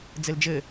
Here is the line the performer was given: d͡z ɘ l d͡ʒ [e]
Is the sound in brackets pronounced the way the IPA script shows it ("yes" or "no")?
no